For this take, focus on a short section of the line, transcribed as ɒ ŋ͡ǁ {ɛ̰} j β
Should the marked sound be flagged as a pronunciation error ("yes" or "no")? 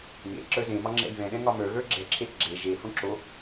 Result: no